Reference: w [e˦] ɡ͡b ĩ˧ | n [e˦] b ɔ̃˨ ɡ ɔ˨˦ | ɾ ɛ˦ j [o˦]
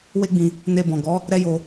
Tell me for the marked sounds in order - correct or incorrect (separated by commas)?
correct, incorrect, incorrect